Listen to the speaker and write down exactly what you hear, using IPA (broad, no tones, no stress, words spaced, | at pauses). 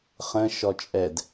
χə̃ʃɔ t͡ʃʼɛd